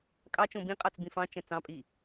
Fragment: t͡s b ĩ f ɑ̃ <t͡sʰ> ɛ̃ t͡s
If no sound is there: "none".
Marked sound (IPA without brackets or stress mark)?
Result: t͡ʃ